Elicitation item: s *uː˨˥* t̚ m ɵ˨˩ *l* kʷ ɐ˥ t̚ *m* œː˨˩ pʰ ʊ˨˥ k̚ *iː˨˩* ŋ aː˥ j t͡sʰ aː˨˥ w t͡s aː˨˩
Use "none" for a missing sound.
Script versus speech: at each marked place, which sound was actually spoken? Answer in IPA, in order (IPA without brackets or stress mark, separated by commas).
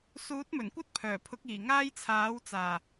uː˨˥, n, pʰ, iː˨˩